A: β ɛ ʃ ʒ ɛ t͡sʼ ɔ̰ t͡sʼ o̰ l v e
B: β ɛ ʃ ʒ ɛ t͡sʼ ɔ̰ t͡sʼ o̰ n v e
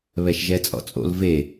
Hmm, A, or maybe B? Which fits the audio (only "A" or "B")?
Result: A